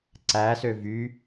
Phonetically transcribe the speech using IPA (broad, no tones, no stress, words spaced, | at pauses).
ǀæsø vy